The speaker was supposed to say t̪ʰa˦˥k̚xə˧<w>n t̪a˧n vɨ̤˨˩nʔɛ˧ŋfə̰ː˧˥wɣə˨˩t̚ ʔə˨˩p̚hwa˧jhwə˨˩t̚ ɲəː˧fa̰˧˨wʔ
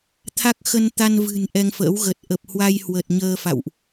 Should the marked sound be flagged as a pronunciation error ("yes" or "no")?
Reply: yes